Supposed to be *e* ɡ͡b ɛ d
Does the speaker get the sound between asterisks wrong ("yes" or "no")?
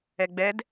yes